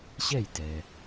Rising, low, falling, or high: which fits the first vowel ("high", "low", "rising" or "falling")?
falling